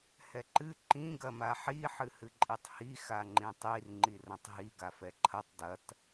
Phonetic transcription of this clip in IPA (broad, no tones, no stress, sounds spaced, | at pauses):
h ɛ ǃ ɨ ǃ ĩ ɡ ɐ m a ħ i ħ ɨ h ɨ ǃʼ i tˤ h i x a ŋ͡ǃ ĩ tˤ i r ŋ͡ǃ i r ɐ̃ tˤ ɦ i ɡ a f ɛ ǃʰ ɐ tˤ d ɐ t